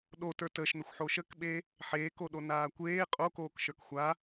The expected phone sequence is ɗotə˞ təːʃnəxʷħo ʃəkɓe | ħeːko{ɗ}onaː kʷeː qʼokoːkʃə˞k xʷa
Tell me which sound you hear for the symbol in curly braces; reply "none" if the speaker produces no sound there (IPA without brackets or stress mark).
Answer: ɗ